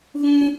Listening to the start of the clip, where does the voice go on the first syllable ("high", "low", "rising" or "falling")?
high